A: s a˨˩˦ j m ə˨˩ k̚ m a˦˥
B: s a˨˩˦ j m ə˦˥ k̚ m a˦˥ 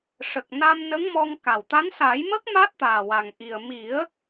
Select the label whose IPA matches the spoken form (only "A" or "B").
B